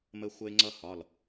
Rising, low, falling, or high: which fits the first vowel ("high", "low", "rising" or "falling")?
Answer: high